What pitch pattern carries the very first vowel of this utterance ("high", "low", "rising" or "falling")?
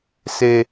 high